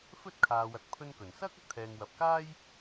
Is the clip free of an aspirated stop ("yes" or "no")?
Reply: no